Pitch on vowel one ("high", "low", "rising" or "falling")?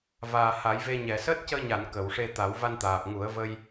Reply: low